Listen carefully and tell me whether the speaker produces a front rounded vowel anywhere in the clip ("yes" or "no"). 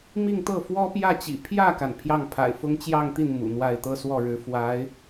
no